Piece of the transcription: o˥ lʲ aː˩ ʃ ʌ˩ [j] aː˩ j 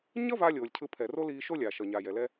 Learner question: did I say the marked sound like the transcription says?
no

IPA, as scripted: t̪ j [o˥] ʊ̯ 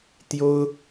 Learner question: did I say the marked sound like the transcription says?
yes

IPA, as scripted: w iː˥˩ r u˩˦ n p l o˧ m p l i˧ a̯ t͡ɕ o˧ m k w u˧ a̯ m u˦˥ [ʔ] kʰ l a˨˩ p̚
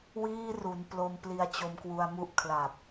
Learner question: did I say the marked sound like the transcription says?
yes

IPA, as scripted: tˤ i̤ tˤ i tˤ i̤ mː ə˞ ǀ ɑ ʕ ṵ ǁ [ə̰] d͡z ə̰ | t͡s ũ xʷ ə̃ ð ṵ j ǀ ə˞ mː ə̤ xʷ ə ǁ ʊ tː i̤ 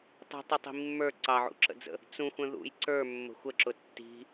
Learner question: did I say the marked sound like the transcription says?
yes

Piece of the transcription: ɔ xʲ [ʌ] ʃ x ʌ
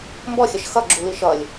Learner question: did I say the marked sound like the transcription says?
yes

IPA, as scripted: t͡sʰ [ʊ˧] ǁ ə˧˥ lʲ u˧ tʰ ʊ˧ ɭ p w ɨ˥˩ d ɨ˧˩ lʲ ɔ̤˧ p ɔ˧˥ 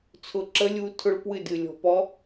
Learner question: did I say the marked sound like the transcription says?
yes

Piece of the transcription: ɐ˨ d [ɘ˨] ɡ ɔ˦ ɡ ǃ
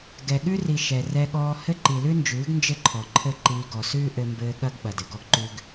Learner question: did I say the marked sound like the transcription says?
yes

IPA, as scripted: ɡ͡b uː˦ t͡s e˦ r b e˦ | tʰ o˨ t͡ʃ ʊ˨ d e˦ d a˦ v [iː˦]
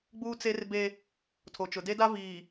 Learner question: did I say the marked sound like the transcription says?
no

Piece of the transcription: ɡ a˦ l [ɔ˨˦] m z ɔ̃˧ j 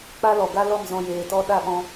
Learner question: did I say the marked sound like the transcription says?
no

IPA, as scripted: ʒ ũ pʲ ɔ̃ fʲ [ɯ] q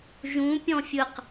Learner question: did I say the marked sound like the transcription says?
yes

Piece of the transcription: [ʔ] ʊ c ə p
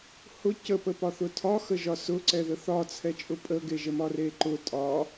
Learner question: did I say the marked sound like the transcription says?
no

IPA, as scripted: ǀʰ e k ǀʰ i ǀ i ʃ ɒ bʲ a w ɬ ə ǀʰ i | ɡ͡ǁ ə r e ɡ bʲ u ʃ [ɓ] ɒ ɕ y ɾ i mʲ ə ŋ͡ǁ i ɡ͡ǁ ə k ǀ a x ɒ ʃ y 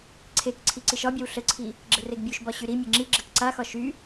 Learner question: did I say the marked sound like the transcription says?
no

